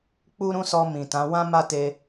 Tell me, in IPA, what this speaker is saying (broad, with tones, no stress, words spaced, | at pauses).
k͡pu˦ɾũ˦sɔ˧ mĩ˨tã˨˦ wã˦ ma˦te˧